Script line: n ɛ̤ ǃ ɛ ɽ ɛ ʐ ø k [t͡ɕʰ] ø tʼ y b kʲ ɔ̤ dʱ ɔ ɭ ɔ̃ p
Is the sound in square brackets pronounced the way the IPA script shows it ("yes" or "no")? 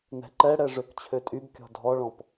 yes